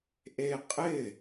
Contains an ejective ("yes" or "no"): yes